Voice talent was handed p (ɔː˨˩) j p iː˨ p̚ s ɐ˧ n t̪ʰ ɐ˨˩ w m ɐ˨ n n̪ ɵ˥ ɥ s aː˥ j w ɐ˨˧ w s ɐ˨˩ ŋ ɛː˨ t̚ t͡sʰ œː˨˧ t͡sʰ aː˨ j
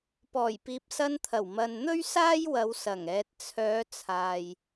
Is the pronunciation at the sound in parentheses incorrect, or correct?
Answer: correct